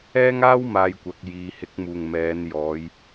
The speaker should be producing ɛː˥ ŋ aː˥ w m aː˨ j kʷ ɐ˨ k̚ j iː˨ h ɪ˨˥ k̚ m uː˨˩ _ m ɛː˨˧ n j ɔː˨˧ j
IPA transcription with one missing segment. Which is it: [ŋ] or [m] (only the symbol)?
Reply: ŋ